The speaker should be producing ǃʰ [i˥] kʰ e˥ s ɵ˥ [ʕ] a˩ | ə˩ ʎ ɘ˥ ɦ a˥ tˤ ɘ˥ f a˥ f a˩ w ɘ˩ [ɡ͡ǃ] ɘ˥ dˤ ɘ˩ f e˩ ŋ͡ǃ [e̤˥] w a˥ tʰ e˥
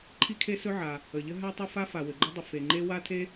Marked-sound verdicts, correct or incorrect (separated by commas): correct, correct, correct, incorrect